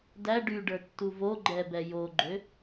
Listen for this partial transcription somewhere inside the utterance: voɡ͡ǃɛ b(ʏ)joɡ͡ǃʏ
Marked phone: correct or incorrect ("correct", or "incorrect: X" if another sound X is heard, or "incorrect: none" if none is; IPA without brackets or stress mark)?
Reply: incorrect: ɛ